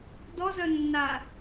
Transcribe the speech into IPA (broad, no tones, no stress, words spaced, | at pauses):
dɔzœnːa